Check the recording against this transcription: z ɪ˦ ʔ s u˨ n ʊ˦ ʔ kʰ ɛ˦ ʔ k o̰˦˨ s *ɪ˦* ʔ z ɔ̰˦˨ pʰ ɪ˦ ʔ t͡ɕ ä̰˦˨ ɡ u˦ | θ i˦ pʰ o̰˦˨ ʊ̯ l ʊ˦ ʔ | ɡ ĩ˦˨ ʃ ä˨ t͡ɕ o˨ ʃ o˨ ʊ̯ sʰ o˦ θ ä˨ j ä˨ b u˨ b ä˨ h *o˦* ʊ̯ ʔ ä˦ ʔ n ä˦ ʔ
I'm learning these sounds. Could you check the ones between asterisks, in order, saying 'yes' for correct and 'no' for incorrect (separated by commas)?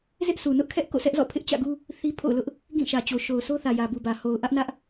no, no